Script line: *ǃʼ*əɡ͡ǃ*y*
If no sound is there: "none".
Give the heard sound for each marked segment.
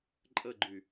ǃʼ, y

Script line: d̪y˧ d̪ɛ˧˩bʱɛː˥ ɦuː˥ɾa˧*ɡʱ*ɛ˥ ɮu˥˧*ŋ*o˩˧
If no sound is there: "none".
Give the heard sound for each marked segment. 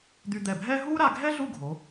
ɡʱ, ɡʱ

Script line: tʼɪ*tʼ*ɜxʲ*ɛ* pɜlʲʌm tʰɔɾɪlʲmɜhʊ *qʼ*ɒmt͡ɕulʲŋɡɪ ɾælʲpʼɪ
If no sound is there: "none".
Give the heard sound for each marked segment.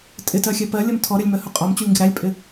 t, ɛ, qʼ

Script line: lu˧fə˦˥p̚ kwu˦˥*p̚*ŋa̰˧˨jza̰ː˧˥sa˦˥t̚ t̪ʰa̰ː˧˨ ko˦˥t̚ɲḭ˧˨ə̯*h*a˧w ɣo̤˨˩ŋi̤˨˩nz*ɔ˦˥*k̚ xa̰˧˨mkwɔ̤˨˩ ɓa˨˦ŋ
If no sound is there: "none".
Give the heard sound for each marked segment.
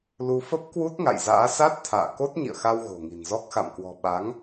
t̚, x, ɔ˦˥

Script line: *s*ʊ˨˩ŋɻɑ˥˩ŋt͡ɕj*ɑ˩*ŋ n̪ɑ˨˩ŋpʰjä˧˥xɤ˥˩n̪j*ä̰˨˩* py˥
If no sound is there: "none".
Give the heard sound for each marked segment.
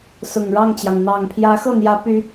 s, ɑ˩, ä˧˥

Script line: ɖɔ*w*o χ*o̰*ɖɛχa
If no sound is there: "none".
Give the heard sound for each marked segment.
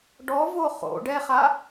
v, o̰

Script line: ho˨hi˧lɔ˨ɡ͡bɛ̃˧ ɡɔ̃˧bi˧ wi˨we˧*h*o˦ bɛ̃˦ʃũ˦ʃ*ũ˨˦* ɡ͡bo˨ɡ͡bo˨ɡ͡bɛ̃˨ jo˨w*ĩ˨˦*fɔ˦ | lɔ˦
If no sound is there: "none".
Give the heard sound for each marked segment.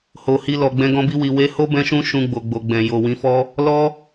h, ũ˧, ĩ˨˦

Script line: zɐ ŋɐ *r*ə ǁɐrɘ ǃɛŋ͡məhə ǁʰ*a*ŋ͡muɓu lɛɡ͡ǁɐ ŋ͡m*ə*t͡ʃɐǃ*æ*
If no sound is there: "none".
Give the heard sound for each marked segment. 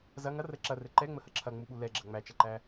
r, ɐ, æ, æ

